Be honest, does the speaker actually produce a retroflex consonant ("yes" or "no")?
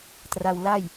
no